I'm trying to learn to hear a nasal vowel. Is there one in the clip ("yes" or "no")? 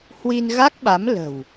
no